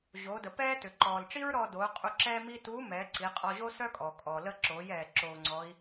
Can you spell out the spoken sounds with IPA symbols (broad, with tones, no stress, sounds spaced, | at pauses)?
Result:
ʑ oː˩˧ d ə˩ p ɛː˥ t ʏ˩ ǃ ɔː˩ l ʈ͡ʂ i˥ ɹ ɾ ɔː˧ d oː˩˧ qʼ u˧ ǁ ɛː˥ m i˥ t uː˧˥ m ɛː˩˧ ǀ i˩˧ qʼ ɔ˧ ʑ o˥ s œː˥ kʼ ɔː˩ kʼ ɔː˩ l ə˧ ǁ oː˩˧ j ɛː˩ ǁ oː˧ ŋ͡ǀ ɔ˧˥ i̯